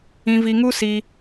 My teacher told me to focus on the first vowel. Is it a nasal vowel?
yes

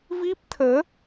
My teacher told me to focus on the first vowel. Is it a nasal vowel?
no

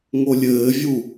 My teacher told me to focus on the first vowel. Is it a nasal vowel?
no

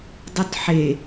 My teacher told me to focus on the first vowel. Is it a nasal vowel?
no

